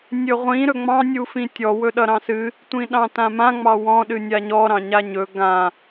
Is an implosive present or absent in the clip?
present